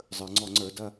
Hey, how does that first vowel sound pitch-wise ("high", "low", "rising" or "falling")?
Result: low